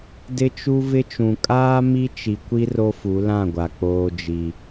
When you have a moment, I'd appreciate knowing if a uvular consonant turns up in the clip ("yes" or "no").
no